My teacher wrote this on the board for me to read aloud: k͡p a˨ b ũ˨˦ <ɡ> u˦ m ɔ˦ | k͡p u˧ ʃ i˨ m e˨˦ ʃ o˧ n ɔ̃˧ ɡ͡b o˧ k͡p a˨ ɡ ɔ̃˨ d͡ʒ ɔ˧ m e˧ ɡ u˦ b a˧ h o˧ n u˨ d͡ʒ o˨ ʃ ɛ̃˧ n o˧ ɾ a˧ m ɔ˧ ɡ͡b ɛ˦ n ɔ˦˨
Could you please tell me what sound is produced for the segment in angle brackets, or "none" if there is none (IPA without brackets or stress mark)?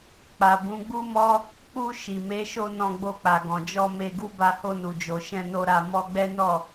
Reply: ɡ͡b